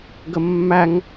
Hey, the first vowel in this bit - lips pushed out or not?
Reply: no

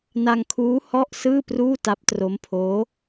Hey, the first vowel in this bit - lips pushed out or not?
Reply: no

